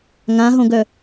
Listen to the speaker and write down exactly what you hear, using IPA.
ŋ ã ɦ õ ɡ œ

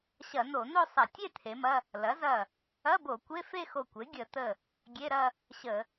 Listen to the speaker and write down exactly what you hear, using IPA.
ɕ ɐ˧˩˧ n̪ o˧˩˧ n̪ o˥˧ sˤ ɐ˧˩˧ tʲ e˥˧ t̪ʰ e˩˥ m ɐ˧˥˧ | l ɐ˩˥ z ɐ˧˩ | ɐ˧˥˧ b o˧˩˧ kʷ e˧˥˧ f e˥˧ x o˧˩ kʷ e˩˥ ɡʲ ə˧˩˧ t̪ ə˧˩ | ɡʲ e˧˥˧ ɾ ɐ˥˧ | ɕ ə˧˩˧

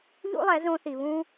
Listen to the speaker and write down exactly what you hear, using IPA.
ʎ ṵ˦ lˠ ɛ˨˦ z õ˧ θ i˨ β ũ˦

